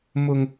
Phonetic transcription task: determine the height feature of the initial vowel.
high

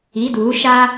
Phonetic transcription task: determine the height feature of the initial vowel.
high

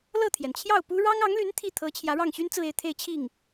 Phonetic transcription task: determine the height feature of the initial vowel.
mid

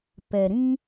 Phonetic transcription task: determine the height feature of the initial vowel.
mid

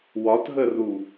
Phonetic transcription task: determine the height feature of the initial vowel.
low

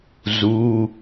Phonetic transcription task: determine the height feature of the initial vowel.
high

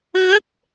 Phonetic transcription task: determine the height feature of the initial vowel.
mid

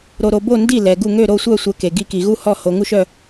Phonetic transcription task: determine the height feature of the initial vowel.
mid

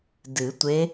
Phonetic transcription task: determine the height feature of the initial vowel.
high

